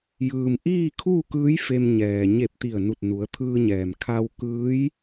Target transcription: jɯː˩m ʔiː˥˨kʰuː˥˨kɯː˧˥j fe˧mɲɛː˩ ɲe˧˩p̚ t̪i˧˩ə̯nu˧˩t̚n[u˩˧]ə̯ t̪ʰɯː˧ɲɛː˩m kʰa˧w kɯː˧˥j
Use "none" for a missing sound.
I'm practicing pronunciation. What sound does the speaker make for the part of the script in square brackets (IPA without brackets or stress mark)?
u˩˧